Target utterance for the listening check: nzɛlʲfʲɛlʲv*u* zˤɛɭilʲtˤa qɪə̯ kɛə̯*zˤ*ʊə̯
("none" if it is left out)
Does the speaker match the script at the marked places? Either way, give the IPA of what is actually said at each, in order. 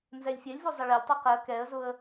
u, z

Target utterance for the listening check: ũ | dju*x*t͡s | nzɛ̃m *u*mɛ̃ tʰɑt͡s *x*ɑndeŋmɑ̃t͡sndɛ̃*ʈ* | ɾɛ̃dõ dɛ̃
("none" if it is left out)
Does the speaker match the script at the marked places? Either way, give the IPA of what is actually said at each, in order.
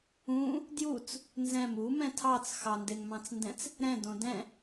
none, u, x, t͡s

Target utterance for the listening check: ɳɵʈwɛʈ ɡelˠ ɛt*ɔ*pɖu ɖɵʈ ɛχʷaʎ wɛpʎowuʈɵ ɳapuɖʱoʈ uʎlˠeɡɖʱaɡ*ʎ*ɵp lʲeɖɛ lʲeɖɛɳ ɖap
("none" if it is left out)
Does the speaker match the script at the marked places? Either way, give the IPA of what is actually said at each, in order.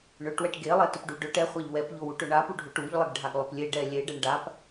ɵ, lˠ

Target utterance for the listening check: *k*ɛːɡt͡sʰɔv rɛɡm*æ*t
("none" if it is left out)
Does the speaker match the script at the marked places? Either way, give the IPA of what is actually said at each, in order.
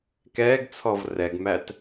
k, æ

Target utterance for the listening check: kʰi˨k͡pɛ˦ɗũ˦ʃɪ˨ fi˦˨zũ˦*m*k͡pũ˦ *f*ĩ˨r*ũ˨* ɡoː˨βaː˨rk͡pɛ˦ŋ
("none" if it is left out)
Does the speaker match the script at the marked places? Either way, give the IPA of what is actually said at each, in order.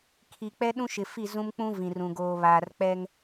m, v, ũ˨

